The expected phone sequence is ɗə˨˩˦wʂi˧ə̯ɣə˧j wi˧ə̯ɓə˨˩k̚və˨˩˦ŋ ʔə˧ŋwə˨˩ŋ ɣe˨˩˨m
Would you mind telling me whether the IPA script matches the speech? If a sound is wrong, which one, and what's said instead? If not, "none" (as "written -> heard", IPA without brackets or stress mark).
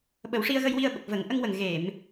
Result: ɗ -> ɓ